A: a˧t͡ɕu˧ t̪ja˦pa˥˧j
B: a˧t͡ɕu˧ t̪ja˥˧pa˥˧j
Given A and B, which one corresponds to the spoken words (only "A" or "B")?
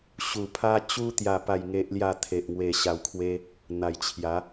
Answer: B